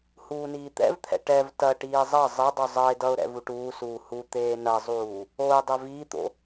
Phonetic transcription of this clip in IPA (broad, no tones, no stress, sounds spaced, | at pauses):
h uː n iː t̪ ɛ̰ v t̪ʰ ɛ̰ ʈ ɛ v t ɐ ʈ iː zˤ ʌ zˤ ɐ dˤ u zˤ ʌ ɪ̯ d ʌ ʊ̯ ɾ ɛ̰ v u ʈ uː s uː h u t̪ eː n ɐ zˤ uː | o ɪ̯ dˤ ɛ v iː t̪ o̰